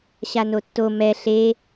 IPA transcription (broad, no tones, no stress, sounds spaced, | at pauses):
ɕ a n o tː o m ɛ ɬ e